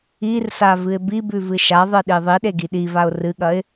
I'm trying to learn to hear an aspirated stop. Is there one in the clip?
no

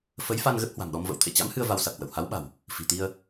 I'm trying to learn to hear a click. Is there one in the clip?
no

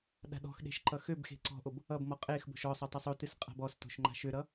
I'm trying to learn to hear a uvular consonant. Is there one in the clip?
yes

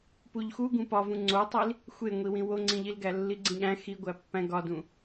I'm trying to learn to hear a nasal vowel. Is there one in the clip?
yes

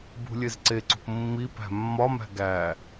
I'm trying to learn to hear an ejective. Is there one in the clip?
no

